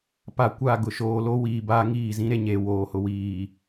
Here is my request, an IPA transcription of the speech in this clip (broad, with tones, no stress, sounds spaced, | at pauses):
p a˨ kʷ a˦˨ ɡ ʊ˨ ʃ oː˨ l o˦ w iː˨ b aː˦ ŋ iː˦˨ z ĩ˦ ɾ e˦ ɲ e˨ w oː˨ h ʊ˨ w iː˨